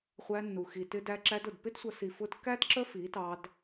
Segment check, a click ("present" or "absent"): present